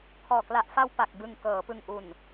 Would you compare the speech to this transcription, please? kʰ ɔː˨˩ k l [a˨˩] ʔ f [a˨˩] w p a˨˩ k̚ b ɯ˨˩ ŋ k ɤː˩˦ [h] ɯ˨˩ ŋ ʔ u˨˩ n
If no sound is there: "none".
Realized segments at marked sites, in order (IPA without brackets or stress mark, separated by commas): a˨˩, a˧, p